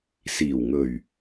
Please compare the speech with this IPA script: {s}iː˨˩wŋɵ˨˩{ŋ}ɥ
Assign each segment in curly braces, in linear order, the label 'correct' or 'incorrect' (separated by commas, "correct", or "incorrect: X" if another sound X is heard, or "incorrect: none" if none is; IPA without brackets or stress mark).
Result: correct, incorrect: none